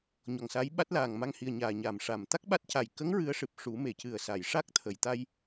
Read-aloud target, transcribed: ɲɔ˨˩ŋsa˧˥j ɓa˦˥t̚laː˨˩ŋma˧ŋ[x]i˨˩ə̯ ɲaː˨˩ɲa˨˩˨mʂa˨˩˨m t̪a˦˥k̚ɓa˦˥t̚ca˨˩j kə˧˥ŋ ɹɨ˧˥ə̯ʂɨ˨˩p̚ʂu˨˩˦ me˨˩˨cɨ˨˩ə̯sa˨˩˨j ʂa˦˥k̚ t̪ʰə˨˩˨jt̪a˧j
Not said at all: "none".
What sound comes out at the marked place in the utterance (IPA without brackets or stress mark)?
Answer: h